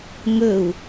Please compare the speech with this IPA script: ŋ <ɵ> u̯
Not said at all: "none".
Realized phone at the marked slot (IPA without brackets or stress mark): ɵ